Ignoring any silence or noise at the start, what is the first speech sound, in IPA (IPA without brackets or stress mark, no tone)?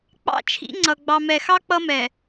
k͡p